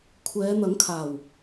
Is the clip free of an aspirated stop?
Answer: no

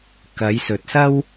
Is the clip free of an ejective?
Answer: yes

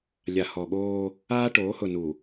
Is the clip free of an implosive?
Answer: no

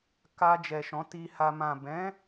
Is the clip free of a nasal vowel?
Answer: no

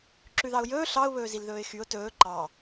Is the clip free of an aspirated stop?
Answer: yes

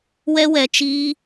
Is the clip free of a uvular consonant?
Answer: yes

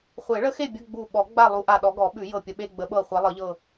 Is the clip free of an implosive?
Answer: no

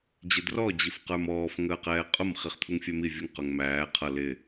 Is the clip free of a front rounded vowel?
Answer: yes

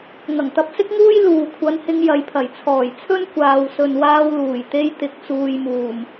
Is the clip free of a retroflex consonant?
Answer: yes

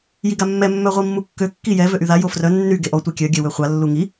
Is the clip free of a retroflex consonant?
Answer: yes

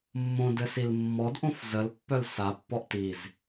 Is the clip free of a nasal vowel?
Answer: no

